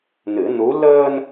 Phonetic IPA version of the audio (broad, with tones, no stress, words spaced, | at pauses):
nɨ˨˩˦nu˧˥ ləː˧n